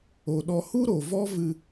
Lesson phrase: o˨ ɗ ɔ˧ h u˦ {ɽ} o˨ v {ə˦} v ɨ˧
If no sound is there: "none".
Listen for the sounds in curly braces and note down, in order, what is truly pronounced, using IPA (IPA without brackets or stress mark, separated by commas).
ɾ, ɔ˦